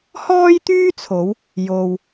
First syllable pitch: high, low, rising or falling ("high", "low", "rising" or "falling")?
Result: high